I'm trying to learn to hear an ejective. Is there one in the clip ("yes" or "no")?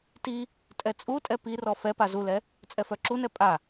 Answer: yes